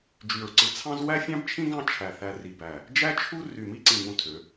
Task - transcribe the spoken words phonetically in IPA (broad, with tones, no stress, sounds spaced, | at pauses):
d͡ʒ y˧˩ ɹ ǀ ɯ˧ t͡sʰ ɑ̃˥ z w æ˥ fʲ ɑ̃˥ b t͡ʃʰ ĩ˥ ɡ ɑ̃˥˧ t͡ʃʰ æ˧˩ θ æ˧ r i˧˩ b æ˧˩ | d͡ʒ æ˥ t͡ʃʰ u˥ r y˧˩ m i˥˧ ǀ ĩ˧˩ ŋ ũ˧ tʰ ø˩˧